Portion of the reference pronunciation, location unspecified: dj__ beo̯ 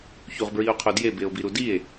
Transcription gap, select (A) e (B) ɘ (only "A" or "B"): A